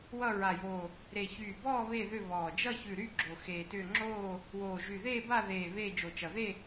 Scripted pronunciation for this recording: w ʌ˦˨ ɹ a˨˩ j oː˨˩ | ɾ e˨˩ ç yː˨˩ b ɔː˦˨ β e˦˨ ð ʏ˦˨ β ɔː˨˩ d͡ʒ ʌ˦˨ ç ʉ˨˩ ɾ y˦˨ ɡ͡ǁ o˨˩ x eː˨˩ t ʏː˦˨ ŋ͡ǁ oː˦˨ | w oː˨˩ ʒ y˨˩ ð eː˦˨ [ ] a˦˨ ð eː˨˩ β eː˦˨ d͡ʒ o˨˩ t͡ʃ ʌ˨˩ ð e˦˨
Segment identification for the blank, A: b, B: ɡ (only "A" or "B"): A